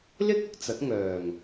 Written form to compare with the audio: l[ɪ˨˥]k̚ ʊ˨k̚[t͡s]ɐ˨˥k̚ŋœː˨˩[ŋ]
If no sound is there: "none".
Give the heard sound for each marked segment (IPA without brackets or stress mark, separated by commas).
ɪ˥, t͡s, ŋ